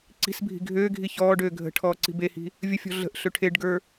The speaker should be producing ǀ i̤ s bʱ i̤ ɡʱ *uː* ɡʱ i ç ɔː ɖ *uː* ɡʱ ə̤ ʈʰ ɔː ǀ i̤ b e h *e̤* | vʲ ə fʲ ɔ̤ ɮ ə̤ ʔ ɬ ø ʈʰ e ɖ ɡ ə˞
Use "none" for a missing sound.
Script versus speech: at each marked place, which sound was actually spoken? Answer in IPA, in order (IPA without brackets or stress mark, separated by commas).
øː, øː, i̤